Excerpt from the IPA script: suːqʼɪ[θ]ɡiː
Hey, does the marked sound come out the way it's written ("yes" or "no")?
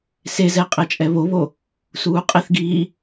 yes